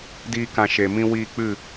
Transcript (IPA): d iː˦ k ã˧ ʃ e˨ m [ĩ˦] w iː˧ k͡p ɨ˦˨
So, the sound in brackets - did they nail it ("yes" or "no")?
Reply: no